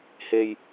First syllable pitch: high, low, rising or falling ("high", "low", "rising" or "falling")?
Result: low